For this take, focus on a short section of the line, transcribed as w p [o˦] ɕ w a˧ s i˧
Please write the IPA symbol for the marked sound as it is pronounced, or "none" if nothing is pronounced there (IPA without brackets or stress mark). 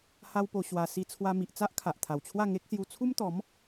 o˧